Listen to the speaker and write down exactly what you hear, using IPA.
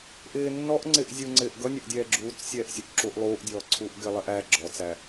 ʔɪː nːɔʔ ŋ͡ǀɪʔ zʲuŋ͡ǀɪːʔ ɡʌnʲʌʔdʲɛː ɡ͡ǁuːt͡ssʲɛːʔsʲʊʔ ǁuʔ lˠuːʔdʲɔːǀʰuːʔ ɡɪlˠɛʔ æ ɡ͡ǁɔt͡sæ

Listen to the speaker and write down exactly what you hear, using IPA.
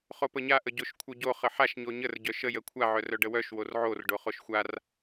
χopəɲa ʔəɟoʃkʷʰœɟo χəħaʃ ɲoɲər ɟœʃə jəkʷʰa ʕœrœɖəwœʃ worʕor ɖoχoʃxʷar

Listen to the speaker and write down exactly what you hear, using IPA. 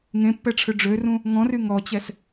ŋẽpːɛʈ͡ʂʰø ɖ͡ʐørũ | ŋɔ̃ry ŋɔt͡ɕɛs

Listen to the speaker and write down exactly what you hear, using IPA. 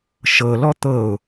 ʃɤlɔ t̪ɤʊ̯

